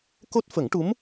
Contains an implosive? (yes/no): no